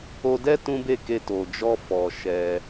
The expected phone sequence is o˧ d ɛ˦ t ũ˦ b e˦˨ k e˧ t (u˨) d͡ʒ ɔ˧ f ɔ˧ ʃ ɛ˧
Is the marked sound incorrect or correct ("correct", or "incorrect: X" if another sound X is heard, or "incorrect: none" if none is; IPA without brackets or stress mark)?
incorrect: o˨